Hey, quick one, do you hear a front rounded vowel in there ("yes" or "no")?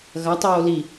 no